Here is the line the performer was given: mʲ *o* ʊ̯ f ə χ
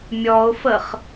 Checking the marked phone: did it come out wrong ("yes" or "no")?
yes